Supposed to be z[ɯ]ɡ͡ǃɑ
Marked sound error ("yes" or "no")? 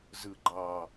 no